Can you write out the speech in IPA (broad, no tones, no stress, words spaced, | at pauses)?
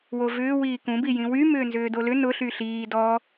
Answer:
wovʏː wiːkũbi jĩwy mʏːnzʏːdolʏ nʊɬy ɬiː dɔ